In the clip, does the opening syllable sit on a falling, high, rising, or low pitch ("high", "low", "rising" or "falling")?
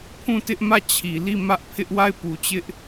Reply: falling